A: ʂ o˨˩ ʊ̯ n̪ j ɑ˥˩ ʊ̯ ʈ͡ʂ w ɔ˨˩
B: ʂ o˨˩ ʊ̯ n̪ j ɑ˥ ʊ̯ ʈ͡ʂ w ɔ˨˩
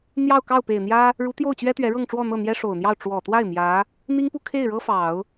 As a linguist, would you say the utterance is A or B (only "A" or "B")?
A